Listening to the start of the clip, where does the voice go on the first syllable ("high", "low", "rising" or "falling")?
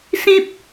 high